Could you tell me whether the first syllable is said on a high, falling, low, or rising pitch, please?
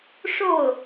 falling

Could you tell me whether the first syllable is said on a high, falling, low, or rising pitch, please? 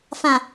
low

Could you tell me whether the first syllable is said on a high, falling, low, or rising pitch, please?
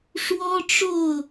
high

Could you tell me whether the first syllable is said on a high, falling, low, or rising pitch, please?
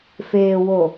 low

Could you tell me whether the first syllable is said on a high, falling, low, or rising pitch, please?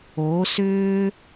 rising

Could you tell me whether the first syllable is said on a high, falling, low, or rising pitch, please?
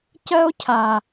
high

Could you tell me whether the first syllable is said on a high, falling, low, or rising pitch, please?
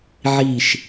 falling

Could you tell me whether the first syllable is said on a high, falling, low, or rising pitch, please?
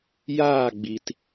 falling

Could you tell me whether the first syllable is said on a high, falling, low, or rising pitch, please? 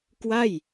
falling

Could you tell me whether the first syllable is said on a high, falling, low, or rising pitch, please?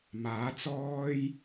rising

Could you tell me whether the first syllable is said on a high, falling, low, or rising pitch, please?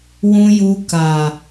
low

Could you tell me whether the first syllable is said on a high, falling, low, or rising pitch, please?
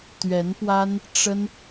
rising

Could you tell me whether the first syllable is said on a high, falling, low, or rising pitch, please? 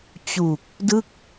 low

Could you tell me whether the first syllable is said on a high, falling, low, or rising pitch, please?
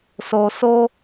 low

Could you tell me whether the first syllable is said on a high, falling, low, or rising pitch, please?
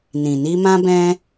low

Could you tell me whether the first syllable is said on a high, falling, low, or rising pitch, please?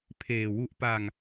low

